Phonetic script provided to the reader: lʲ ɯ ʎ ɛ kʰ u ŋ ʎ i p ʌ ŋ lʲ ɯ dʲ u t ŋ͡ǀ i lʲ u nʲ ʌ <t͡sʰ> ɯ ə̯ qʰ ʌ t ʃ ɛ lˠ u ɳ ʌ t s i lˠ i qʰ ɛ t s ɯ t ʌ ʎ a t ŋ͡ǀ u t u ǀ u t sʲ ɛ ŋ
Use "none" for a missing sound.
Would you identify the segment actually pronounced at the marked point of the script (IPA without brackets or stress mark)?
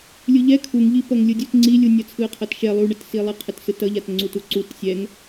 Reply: t͡sʰ